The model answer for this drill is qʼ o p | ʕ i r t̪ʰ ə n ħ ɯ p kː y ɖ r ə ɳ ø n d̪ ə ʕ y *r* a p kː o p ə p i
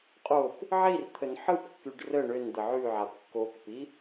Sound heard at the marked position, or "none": ʕ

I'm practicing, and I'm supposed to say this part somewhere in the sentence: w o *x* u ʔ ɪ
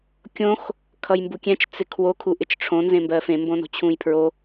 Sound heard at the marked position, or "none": kʰ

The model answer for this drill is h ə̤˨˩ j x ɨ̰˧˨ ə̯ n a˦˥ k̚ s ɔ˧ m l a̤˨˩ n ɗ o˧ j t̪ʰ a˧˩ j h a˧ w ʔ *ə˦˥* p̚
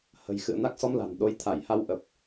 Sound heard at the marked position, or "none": ə˨˩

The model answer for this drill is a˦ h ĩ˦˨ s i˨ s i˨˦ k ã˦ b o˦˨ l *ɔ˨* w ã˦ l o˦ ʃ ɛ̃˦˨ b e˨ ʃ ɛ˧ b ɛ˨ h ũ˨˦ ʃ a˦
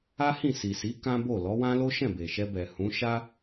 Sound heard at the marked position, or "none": ɔ˨˦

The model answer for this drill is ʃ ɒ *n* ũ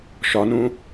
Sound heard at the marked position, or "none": n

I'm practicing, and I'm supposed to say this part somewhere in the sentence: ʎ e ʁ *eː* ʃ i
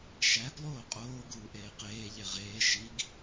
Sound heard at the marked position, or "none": eː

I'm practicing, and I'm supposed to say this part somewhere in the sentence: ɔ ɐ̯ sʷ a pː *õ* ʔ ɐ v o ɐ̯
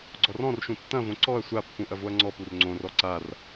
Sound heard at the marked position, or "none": ũ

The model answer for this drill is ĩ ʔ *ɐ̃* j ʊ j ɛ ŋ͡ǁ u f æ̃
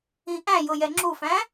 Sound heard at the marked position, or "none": æ̃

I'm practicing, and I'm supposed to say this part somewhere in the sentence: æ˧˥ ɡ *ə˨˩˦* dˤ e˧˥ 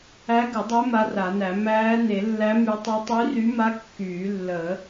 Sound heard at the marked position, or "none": ə˨˩˦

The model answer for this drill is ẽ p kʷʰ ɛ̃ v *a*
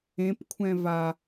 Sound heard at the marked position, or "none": a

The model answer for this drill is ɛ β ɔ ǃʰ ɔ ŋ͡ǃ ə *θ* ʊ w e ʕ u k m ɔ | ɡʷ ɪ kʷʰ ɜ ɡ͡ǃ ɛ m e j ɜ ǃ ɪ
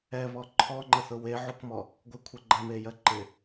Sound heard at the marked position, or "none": θ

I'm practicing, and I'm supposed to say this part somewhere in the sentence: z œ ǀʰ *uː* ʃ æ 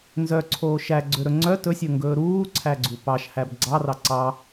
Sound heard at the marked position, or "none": oː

